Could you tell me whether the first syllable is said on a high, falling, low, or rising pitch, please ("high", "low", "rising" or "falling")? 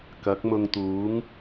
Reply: rising